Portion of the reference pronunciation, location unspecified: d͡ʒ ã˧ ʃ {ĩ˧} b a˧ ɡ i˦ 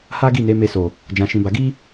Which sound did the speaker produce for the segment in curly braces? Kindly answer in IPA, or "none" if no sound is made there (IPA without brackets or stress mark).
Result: ĩ˧